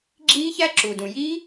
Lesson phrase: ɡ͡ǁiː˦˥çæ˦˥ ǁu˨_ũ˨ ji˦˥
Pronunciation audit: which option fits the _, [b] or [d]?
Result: d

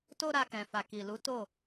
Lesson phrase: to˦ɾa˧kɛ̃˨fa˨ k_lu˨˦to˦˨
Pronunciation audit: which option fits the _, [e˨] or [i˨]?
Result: i˨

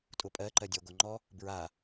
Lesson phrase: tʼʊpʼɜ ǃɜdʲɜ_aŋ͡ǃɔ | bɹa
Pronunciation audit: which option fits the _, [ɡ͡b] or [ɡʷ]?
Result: ɡʷ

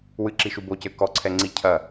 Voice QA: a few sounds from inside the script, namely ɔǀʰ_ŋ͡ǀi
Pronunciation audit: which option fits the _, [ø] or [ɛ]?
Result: ɛ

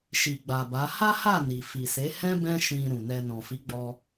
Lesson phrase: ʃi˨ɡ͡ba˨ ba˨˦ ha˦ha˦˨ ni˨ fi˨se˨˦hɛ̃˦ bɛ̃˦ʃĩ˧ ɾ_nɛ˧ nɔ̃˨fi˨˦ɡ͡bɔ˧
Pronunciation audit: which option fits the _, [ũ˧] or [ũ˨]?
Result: ũ˨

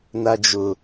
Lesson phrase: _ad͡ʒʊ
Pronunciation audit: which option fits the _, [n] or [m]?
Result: n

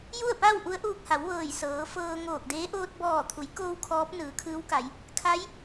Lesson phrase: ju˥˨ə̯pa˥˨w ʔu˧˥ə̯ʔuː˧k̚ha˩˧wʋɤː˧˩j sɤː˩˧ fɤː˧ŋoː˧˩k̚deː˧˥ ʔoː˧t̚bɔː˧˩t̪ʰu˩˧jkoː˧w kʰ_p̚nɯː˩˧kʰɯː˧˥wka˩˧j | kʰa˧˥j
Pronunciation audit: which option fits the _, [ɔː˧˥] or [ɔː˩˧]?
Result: ɔː˧˥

